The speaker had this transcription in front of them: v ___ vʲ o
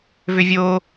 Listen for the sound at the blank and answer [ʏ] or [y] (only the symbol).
ʏ